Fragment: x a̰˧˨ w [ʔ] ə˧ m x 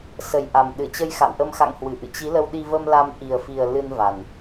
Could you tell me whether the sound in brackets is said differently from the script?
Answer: no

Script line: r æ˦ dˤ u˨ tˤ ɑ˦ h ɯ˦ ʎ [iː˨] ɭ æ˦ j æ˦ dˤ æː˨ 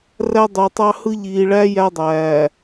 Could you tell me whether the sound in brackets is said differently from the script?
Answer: no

